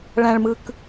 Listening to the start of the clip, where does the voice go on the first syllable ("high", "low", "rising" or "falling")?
low